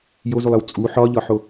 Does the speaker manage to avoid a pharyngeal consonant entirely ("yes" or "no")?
no